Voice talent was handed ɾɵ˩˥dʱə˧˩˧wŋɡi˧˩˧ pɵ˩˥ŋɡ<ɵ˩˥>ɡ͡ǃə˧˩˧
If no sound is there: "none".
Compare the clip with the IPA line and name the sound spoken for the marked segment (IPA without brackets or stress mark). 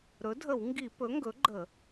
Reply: ɵ˩˥